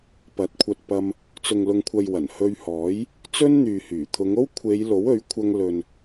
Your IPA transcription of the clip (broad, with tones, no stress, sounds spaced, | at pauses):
p ɐ˨˥ t̚ kʷʰ ɐ˧ t̚ p ɐ˧ m | t͡s ʊ˨ ŋ l ʊ˨ ŋ kʷʰ ɐ˨ j w ɐ˨˩ n h ɵ˧ ɥ h ɔː˨˥ j | t͡s ɵ˥ n n̪ yː˨ h yː˨˩ t̪ʰ ʊ˨˧ ŋ o˥ w kʷʰ e˨˧ j l o˨˥ w ɵ˨˥ ɥ kʷʰ ɐ˧ ŋ l ɵ˨ n